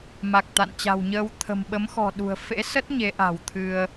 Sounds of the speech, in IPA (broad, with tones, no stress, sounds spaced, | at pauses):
m a˨˩ k̚ t̪ a̰˧˨ n t͡ɕ a̤˨˩ w ɲ əː˧ w t̪ʰ ə̤˨˩ m ɓ ə˨˦ m x ɔ̤˨˩ ɗ ṳ˨˩ ə̯ f ḛ˧˥ s ə˦˥ t̚ ɲ e˨˦ ʔ a̤˨˩ w t̪ʰ ɨ˧ ə̯